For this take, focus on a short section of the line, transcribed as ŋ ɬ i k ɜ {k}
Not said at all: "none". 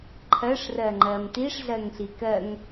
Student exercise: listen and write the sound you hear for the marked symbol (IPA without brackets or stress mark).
ŋ